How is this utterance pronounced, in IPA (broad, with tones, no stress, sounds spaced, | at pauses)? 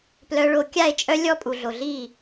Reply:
p l œ˦ ɭ o˦ kʲ a˦˨ e̯ t͡ʃʼ œ˦ lʲ ɔ˦ pʼ u˨ ɮ o˨ ɮ i˦˨